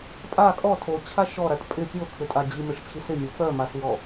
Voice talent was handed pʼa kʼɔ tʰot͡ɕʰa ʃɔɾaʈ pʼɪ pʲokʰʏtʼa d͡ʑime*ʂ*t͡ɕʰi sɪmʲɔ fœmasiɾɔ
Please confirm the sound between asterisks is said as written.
yes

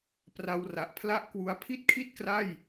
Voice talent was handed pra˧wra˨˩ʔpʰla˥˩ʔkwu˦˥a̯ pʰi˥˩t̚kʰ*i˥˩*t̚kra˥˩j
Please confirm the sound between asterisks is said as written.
yes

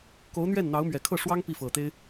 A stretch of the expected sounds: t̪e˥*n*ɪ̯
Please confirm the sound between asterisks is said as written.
no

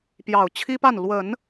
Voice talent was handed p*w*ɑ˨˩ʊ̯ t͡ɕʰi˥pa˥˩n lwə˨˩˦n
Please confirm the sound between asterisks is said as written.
no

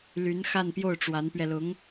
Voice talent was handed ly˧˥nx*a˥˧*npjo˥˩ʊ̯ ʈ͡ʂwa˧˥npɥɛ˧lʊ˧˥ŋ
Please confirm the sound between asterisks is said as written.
yes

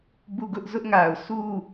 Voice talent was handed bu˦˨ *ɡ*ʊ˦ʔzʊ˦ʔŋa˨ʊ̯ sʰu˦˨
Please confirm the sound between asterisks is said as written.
yes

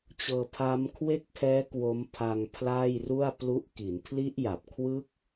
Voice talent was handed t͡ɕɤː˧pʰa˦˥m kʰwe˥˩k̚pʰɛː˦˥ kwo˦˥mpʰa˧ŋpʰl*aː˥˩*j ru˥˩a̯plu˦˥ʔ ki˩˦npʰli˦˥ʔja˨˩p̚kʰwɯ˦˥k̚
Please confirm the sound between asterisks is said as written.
yes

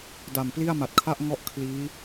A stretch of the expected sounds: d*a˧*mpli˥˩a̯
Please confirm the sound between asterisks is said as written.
no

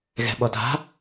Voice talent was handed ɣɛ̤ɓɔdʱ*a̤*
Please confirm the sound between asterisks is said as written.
yes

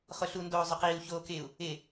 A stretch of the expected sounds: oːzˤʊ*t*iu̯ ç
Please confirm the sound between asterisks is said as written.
no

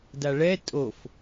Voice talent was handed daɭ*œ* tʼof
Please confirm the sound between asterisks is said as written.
no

